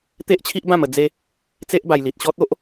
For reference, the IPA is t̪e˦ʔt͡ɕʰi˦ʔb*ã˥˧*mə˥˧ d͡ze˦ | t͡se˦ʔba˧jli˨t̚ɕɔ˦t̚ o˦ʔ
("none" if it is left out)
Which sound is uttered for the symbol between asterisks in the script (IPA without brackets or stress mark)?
ã˥˧